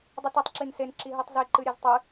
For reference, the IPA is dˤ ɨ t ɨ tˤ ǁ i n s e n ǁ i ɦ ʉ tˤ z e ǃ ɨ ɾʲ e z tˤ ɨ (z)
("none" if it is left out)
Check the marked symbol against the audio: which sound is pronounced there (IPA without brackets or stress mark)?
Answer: none